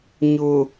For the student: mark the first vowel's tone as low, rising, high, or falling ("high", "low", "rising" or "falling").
low